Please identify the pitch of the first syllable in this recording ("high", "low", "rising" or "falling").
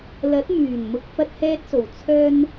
rising